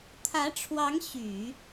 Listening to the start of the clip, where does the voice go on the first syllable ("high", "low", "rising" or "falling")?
rising